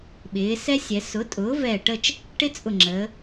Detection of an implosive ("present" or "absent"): present